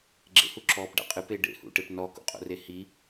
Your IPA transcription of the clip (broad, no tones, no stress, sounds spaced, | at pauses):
ɡ͡ǁ ḛ h u ǁ ɔː p ɖ a̰ qʼ ɨ p e ɖ ḛ h ṵ ʈ e p n ɔ k o̰ qʼ o̰ r e h i